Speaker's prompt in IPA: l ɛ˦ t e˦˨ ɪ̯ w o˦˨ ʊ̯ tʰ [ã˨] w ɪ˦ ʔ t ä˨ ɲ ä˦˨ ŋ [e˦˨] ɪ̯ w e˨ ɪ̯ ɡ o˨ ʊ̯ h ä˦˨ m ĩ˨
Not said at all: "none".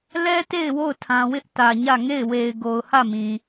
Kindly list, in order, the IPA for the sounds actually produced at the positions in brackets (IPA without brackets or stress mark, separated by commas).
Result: ã˨, e˦˨